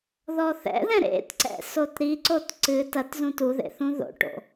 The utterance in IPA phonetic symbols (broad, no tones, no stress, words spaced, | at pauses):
ðɔθɛ̰ðɛ̃ ɾḛtǀɛ̰ sotɾiǀot ǀɨ tɐt zũtuðḛ θũðo̰ʈo̰